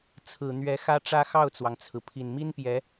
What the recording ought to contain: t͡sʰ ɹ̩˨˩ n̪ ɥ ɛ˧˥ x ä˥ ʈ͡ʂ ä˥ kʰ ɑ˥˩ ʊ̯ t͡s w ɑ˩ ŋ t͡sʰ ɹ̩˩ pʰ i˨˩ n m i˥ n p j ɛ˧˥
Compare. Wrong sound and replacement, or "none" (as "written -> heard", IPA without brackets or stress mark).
kʰ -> x